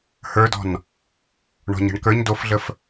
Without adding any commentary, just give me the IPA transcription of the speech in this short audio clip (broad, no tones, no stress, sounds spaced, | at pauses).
h ə˞ d ɔ̤ n | ɳ ɔ̤ ɲ ə̤ ɳ k ə˞ ɲ d o f ɮ ə f